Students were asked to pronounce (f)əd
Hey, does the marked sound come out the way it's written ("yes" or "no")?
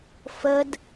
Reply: yes